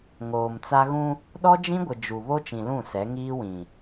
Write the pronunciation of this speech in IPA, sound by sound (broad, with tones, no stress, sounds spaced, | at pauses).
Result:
ŋ oː˨ m t͡s a˦ ɣ ũ˦ | ɗ ɔ˦ d͡ʒ ĩ˦ ɡʷ ɪ˨ d͡ʒ u˨ β o˦ t͡ʃ ĩ˨ l ũ˦˨ s ɛ˨˦ ŋ iː˦ w ĩ˨